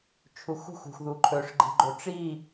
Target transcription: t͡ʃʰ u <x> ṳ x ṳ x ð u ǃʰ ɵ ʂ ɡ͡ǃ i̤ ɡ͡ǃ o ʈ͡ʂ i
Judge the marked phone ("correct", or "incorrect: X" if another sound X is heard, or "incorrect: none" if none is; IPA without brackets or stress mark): correct